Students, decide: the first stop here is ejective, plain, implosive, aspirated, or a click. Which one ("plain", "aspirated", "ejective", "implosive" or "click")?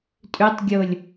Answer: ejective